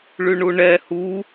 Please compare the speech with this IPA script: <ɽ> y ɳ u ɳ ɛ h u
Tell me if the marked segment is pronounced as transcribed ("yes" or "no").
no